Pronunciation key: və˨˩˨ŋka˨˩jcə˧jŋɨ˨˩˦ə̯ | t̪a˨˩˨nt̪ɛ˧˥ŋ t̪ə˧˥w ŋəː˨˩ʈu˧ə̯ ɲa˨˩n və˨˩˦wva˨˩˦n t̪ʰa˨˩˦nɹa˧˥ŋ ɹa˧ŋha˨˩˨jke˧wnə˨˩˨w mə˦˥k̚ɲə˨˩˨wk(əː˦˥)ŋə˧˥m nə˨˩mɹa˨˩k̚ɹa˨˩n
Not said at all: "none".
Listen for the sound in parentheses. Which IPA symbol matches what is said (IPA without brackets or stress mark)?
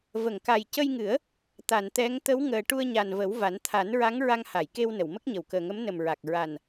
əː˨˩